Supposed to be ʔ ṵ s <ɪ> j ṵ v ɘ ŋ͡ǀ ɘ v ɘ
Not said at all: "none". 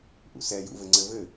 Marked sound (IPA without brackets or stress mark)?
ɛ